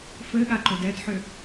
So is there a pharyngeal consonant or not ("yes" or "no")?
yes